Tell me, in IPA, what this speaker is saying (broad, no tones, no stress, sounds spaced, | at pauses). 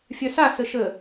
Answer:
fʲ œ s a s ə ʃ ə